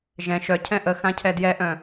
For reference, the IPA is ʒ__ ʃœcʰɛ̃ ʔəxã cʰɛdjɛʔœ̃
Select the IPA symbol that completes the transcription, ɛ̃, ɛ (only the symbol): ɛ̃